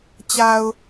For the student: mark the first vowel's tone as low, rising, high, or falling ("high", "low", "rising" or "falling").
low